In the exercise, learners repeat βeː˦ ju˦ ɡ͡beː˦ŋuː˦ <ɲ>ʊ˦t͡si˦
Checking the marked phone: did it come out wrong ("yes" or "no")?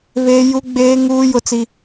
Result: yes